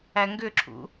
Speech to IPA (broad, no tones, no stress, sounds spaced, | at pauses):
æ ŋ ɡ ʏ ǁʰ ṵ